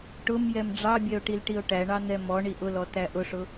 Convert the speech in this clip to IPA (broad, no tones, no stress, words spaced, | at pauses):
ʈʊm jɛmɖ͡ʐɑbʲɛo̯ ʈilʈio̯ʈæɳɑ n̪ɛmɔɳi ʔʊlɔ tæʔʊʂʊ